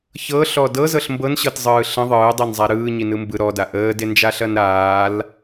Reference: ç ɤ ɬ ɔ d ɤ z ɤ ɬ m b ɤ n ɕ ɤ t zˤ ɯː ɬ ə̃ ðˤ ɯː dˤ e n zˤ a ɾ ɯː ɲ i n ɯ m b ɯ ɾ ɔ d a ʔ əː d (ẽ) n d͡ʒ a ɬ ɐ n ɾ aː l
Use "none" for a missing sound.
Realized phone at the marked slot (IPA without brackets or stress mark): e